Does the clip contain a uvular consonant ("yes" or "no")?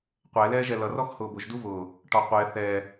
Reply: yes